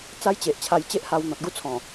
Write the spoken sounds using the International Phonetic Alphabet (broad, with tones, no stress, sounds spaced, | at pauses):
t͡s a˦ j t͡ɕ e˨ ʔ t͡ɕʰ a˧ j t͡ɕ e˦ ʔ h a˧ w n̪ ɔ̃˨ t̚ ɡ u˦ t͡sʰ ɔ̃˨˩